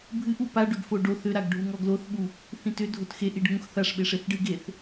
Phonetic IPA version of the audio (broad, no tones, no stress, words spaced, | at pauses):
bʱɨʔu paɖʏɡ foɖoθ ʏɾaɡ ɖʱuŋɔɡloθɓu | θĩtʏ dʱotxeʔiɖ ŋũxθaʂɓeʂ eθɖɨɡeθ